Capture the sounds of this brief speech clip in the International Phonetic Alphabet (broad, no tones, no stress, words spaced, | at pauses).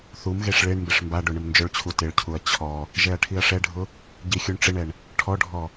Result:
θumɣeʂ ɭeɳmbɪʂ mbaɖʊ ɳɪmnd͡ʒʊɭt͡ɕʰu tɪɭcʰuɐ̯ t͡ɕʰɔ | ʒɛɐ̯ʈʰiɐ̯ʂɛɖʱʊ | ɟixʲuɳʈ͡ʂɪɳɛɳ | ʈʰɔɖʱɔ